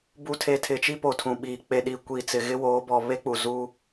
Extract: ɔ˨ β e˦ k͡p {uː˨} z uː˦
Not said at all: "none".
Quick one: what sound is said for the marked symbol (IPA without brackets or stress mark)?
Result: u˨